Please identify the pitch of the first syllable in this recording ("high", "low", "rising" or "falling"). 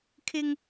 high